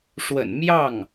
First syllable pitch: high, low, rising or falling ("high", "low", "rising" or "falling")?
low